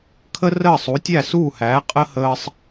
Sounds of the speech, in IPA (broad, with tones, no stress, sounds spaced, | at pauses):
kʰ ə˥ r əː˥˩ sˤ u˩˥ tʲ æ˥˩ s uː˥˩ h æː˩˥ qʼ ə˥ h əː˧ sˤ